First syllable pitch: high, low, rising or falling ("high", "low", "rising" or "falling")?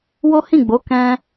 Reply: high